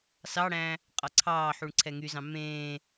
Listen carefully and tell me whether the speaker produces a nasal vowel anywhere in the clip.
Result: yes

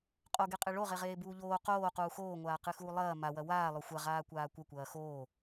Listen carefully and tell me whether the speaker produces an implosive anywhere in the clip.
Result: no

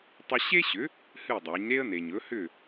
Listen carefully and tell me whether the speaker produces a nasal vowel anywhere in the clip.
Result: no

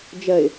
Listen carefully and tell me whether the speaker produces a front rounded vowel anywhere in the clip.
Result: no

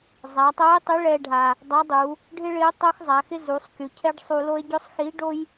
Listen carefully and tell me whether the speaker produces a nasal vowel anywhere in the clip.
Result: no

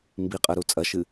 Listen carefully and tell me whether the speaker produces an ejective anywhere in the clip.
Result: yes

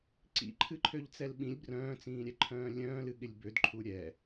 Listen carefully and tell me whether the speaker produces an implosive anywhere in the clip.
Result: yes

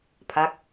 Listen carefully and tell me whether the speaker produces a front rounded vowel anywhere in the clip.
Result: no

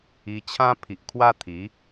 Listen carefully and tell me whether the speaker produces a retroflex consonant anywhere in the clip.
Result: no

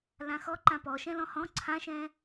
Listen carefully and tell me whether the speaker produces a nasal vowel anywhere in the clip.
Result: yes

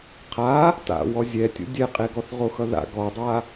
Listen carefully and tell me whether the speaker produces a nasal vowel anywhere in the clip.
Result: no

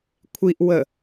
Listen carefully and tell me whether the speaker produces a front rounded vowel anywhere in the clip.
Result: no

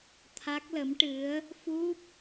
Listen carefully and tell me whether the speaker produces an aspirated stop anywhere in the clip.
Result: yes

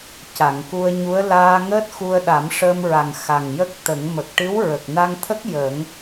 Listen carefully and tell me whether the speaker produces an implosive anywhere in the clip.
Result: yes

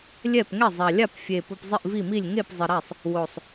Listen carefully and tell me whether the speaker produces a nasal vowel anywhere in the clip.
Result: no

